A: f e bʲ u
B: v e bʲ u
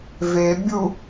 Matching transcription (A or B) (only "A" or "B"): B